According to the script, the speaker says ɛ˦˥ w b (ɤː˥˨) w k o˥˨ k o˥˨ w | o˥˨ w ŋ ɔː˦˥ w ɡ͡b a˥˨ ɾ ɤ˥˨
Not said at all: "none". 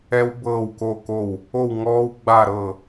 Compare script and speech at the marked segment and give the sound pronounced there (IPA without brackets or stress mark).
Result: ɤː˥˨